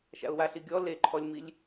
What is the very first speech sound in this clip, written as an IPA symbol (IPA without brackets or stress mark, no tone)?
ʃ